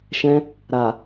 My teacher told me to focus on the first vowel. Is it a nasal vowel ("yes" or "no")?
yes